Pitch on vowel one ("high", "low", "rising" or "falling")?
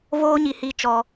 high